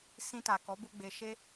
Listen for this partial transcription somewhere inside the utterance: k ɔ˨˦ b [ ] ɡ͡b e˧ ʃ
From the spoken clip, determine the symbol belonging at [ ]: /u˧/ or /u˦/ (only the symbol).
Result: u˧